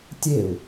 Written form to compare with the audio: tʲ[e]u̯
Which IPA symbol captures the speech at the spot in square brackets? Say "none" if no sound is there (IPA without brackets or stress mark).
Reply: e